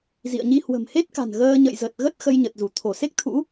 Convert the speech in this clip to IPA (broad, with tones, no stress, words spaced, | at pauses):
zḭ˧˨ə̯ɲi˧ hwə̤˨˩mhe˦˥t̚ka̤˨˩n ɣəː˧ɲə̰˧˨j zə˨˩t̚ɣə˦˥t̚ xə˧jɲə˨˩t̚zu˧˩ t̪ʰo˧˩se˦˥k̚t̪ʰṵ˧˥